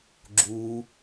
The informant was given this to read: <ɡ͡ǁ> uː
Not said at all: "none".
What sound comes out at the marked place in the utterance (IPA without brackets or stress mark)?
ɡ͡ǁ